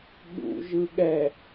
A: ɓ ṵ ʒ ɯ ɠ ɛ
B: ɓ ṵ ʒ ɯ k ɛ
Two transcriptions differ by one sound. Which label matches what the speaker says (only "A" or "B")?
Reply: A